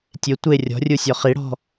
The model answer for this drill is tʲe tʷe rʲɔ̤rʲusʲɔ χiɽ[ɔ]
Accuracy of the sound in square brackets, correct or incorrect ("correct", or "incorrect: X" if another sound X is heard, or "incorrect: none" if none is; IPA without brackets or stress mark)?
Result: incorrect: ɔ̤